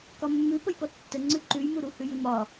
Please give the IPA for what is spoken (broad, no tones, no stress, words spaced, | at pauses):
kɒmːʉ pəjpɔtːə ŋ͡ǀʉǃʉjmu ɾuhʉjʉmɒ